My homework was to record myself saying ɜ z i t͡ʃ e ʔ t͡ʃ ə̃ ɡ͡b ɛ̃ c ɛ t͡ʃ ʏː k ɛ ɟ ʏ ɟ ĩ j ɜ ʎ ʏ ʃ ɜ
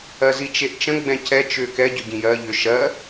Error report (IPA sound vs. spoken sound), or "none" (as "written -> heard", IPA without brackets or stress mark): none